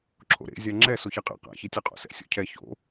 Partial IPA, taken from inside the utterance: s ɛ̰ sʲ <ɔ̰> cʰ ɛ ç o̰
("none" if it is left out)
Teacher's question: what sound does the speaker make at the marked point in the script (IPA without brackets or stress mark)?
o̰